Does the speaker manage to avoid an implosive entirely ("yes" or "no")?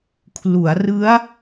yes